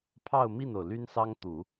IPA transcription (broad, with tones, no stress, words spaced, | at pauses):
pʰɑ˥˧ʊ̯mi˥˩no˩ʊ̯ ly˥nsɑ˥ŋt̪u˨˩˦